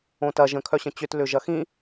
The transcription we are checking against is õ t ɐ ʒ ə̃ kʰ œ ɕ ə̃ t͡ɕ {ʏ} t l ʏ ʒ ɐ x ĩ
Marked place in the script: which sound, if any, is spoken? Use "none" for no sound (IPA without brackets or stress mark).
ʏ